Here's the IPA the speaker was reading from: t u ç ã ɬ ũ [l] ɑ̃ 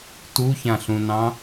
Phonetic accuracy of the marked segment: incorrect: n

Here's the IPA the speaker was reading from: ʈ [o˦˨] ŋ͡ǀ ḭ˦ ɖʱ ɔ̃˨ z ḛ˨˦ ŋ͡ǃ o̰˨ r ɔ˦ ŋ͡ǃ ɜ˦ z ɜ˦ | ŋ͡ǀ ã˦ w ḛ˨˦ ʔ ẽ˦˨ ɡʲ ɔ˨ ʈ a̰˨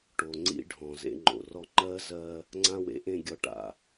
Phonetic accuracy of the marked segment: incorrect: o˨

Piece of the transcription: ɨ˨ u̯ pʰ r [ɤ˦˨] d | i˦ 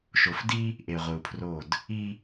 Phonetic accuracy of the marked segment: incorrect: o˦˨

